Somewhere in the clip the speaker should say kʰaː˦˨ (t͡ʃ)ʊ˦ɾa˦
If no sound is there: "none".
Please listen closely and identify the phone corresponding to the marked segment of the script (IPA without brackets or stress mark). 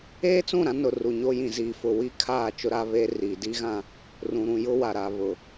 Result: t͡ʃ